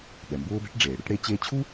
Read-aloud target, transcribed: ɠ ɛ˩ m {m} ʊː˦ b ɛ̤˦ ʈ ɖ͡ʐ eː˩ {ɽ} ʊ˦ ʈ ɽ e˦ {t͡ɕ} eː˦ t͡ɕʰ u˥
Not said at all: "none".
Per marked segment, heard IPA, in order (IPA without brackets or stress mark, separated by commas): b, ɽ, t͡ɕ